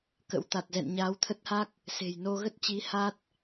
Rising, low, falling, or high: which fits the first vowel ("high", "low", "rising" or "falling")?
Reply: rising